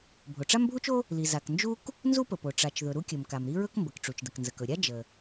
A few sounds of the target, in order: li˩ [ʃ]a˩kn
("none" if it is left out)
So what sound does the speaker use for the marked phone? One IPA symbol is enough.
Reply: z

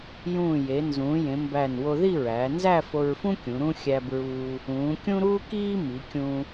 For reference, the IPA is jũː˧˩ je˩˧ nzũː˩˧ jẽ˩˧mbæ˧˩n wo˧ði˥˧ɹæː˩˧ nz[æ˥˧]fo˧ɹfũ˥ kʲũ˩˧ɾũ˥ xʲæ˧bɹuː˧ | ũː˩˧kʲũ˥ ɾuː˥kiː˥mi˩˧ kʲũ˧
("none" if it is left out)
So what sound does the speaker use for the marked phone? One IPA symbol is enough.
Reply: æ˥˧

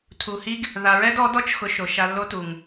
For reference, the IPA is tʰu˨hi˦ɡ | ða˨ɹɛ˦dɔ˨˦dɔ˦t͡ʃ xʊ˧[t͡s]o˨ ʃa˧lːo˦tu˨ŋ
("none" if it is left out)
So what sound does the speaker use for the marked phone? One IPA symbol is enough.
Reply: ʃ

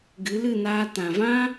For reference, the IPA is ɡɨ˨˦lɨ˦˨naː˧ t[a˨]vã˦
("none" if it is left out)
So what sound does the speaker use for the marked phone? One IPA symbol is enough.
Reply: ã˨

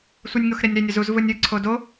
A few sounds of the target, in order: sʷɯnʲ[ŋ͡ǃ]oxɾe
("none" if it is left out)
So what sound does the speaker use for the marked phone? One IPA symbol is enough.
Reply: ŋ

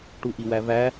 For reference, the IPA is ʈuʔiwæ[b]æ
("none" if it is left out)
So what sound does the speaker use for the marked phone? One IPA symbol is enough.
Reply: v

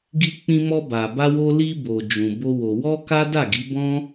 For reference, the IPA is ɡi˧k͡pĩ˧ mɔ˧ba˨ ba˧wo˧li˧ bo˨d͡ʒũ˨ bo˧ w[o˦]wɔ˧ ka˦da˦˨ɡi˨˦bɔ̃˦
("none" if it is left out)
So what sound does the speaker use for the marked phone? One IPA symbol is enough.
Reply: o˨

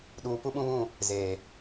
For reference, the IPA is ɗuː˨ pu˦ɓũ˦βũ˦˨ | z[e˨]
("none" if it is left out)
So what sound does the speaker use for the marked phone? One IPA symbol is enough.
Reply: eː˨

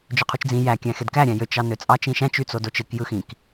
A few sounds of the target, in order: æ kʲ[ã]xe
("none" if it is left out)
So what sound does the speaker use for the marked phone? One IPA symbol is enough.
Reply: æ̃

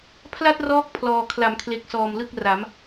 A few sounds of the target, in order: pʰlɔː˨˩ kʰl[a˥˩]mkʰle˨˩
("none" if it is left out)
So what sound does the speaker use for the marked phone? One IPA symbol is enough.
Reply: a˩˦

